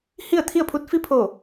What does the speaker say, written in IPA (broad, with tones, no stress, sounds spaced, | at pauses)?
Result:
h i˥˨ ə̯ t̪ʰ i˥˨ ə̯ pʰ u˧˥ t̚ f i˧ pʰ o˧˩